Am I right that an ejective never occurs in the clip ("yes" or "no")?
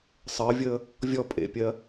no